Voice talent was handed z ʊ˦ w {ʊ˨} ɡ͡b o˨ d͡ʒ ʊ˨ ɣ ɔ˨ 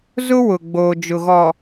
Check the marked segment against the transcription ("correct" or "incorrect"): correct